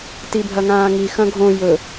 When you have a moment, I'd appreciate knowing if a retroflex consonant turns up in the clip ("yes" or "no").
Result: no